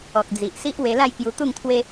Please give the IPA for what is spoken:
ɔ˨k̚d͡zi˨ʔsi˦ʔ we˧la˥˧jkju˧ t̪u˥˧ŋt̪ʰwe˦

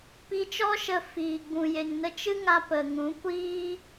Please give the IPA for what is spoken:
pi˧t͡ʃɔ˦ʃə˧ fiː˨ ɡ͡bũ˨je˨ŋ nə˧t͡ʃɨ˦ŋa˧ pə˨ŋũ˨˦kʷiː˦

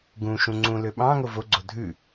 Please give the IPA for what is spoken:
ɡũʃũ ŋ͡ǀũlø ɓɑ̃ ŋovoɡ͡ǀo dʱʉ

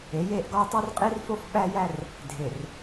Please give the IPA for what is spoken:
e˨˦je˦˨ʔ ɡɒ˦jtˤu˦r qʼi˦rfo˦f ɓæ˦jæ˦r | dʱe˨r

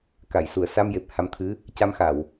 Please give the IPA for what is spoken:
ka˨˩˨jsu˨˩˨ə̯ sa˧mje˨˩p̚ ha˧mt̪ʰɨ˧˥ | ca˧mxa˨˩˨w

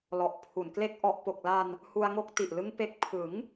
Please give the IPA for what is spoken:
lɔ˨˩ʔpʰu˨˩nkle˥˩k̚ ʔɔ˨˩ʔpo˨˩k̚la˧n | hu˧a̯ŋo˦˥k̚ti˨˩ʔlɯ˦˥ŋ pe˨˩k̚pʰɯ˩˦ŋ

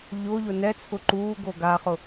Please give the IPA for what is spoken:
ʎʊːʎʊ nɛt͡sʰʊ ǃuːɡo ɡaχʊ

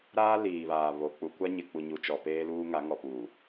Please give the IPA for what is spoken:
ɾaː˦ liː˨βaː˨βo˨ k͡pu˨kʷa˦ɲɪ˨k͡pu˨ ɲu˨ t͡ʃɔ˨peː˦luː˦ ŋa˨˦ŋɔ˨puː˨

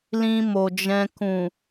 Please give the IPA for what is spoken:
lĩ˧mo˨d͡ʒɛ̃˧ kũ˨

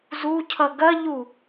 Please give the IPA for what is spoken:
zucʰʌ ɡɐʎu

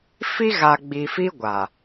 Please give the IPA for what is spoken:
fi˦ɣa˨ɡ͡bi˨ fi˦ɡʷa˨

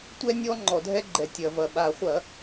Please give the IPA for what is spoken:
tʷɛ˦nʲɔ˦ ŋ͡ǃɔ˩dʱɛ˦ɡ͡ǃɛ˩ tʲɐ˩vɐ˩ ɓa˧˩˧ χʷɐ˧˩˧

